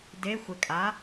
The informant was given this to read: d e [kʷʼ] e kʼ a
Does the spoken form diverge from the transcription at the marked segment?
yes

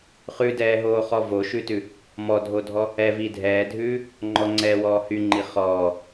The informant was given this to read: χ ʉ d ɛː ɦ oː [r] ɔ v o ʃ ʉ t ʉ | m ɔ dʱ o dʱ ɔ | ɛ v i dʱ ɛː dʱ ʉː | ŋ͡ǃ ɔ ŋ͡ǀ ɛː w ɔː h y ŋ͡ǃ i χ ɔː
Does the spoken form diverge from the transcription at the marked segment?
yes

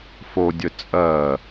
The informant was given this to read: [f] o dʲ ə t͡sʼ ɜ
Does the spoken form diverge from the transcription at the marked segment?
no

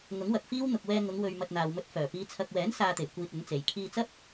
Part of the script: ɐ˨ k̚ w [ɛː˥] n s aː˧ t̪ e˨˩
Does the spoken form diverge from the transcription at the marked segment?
yes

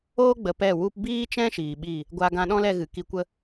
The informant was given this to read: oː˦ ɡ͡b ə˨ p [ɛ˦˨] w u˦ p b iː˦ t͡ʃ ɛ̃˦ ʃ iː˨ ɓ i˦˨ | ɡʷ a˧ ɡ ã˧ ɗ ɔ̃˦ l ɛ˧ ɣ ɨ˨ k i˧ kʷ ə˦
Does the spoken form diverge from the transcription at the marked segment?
no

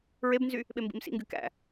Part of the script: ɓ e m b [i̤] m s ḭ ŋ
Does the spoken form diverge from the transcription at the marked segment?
yes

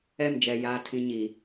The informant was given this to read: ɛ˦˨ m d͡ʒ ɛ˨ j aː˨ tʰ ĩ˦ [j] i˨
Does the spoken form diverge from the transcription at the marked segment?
yes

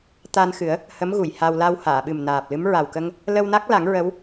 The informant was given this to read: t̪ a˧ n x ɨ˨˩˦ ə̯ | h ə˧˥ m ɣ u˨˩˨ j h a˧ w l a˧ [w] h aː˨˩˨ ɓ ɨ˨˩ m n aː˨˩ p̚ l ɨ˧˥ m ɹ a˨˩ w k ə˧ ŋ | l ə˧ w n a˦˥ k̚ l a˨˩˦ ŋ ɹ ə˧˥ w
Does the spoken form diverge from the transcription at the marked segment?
no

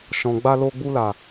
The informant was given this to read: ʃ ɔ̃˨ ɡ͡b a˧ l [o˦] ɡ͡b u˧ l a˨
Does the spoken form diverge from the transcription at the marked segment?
yes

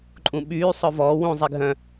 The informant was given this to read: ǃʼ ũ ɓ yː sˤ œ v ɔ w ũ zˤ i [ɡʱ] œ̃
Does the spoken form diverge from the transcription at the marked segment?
no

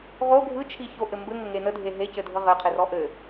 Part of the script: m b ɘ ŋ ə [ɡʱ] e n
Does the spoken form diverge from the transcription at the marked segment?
yes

